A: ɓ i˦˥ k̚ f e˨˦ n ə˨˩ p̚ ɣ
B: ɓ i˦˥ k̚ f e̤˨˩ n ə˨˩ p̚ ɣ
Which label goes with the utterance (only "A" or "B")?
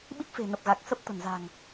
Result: B